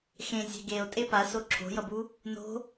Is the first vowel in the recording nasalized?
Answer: yes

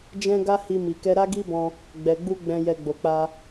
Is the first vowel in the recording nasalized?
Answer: yes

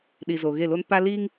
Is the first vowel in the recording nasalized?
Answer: no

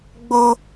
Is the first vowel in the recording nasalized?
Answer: no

